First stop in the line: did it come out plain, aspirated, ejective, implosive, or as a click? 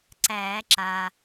click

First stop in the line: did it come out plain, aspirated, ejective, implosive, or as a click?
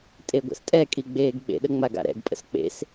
ejective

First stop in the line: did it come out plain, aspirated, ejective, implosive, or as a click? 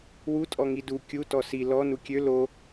ejective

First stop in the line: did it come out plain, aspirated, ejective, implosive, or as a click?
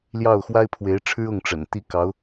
aspirated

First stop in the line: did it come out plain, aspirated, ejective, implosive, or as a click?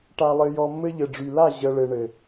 plain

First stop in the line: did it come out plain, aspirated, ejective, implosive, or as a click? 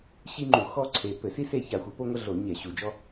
click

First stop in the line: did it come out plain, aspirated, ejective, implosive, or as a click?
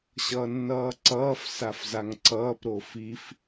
click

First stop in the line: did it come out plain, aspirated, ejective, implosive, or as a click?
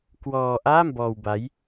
plain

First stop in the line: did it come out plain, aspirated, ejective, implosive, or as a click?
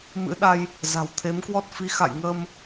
implosive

